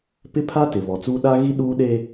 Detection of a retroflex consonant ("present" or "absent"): absent